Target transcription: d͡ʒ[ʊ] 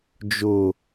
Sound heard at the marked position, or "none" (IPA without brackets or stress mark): ʊ